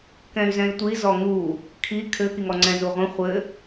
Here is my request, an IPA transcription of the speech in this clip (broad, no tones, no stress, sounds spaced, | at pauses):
k ɛ̃ y̯ z ɛ̃ i̯ tʷ i z ɔ ŋ u | kʰ i kʰ ɘ k i ŋ ɔ ŋ͡ǀ ɛ̃ z u ʁʷ ĩ χʷ ɘ